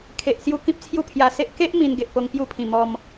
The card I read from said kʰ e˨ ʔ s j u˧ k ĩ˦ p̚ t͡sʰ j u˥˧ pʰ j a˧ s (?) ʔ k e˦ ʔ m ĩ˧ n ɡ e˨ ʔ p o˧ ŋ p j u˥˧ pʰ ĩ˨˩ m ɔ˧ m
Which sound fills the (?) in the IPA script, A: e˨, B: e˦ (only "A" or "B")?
B